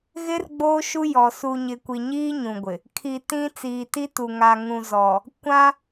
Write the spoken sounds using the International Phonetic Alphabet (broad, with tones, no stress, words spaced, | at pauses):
ɣɪ˦r ɡ͡boː˦ʃu˦ jɔ˨ su˨ ɲɪ˨kʷi˨ɲiː˦ ɲũ˨ɡʷɪ˨ | kʰi˨ tĩ˦ t͡siː˨ti˦tu˨ ŋa˨ŋũ˨ zɔ˨ | kʷã˦